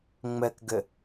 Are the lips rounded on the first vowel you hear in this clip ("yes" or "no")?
no